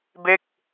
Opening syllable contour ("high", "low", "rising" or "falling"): falling